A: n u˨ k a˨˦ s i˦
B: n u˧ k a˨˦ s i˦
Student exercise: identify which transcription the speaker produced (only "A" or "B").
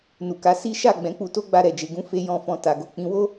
A